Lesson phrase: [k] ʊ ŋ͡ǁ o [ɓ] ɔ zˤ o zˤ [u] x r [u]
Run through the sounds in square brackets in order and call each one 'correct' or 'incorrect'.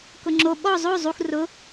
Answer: correct, correct, correct, incorrect

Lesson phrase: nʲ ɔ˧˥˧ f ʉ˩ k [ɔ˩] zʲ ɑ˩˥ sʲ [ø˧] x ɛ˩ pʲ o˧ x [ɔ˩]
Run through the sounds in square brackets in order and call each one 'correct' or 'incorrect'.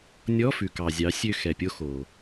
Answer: incorrect, correct, incorrect

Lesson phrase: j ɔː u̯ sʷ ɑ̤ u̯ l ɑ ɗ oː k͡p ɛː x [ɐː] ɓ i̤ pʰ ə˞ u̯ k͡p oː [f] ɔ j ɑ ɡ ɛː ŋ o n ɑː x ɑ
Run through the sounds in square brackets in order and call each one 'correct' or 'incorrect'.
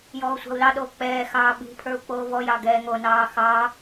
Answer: incorrect, incorrect

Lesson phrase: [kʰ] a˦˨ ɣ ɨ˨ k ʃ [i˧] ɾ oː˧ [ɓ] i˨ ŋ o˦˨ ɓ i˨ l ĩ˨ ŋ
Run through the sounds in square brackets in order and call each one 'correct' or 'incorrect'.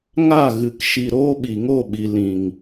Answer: incorrect, incorrect, correct

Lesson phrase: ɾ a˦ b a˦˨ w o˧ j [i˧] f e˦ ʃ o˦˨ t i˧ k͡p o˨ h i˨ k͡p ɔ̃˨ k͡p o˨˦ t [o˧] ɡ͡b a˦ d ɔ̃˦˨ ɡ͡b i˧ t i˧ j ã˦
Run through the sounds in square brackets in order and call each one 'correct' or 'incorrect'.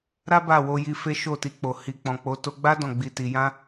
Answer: correct, correct

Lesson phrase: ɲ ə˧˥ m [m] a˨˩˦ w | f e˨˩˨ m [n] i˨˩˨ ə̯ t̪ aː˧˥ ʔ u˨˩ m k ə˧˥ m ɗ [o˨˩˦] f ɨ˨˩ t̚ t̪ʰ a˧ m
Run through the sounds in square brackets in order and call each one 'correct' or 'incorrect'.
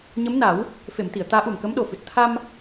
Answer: incorrect, incorrect, incorrect

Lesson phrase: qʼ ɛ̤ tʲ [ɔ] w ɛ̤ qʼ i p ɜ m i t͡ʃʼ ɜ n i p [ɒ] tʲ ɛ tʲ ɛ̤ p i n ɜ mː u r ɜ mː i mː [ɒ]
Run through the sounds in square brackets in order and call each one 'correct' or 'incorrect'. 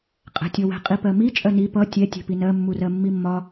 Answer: correct, incorrect, correct

